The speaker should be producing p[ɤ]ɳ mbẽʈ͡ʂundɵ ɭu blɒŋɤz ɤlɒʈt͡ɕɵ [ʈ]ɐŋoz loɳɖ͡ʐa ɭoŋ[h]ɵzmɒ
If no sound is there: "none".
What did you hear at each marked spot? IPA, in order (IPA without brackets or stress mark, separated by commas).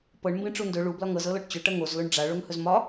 ɤ, ʈ, h